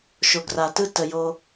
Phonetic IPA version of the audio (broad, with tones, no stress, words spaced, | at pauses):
ʃo˩ɡra˩tɯ˦ tə˩ jo˨